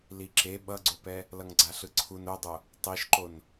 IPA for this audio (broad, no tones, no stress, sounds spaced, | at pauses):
l i ǁ e ɓ ʌ ɡ͡ǀ o p ɛ | l ʌ ŋ ɡ͡ǀ a ɬ ɯ ǀʰ u n o dˤ o | tˤ i ʃ ǃ o n